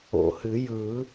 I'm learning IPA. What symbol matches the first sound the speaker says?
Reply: o̰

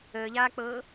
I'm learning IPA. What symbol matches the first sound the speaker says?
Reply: əː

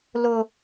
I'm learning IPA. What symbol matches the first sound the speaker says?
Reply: l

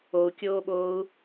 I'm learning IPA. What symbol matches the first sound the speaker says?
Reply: o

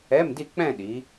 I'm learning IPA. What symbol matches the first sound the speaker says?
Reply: ɛ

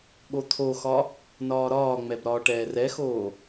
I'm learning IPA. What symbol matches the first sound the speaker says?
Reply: ɠ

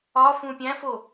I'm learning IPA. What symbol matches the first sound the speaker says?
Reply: ɒ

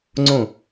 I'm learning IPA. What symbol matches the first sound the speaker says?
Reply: ŋ͡ǀ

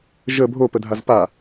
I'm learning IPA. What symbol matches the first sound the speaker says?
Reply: ʒ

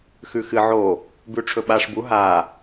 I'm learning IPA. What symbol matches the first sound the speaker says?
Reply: x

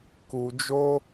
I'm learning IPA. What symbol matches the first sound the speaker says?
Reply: k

